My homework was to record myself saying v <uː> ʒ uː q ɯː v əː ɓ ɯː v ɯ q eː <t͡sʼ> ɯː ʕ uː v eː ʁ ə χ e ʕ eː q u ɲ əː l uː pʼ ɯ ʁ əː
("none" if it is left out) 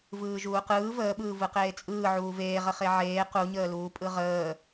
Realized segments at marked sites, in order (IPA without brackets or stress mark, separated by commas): ɯː, t͡sʼ